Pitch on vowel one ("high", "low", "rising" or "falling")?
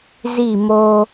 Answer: falling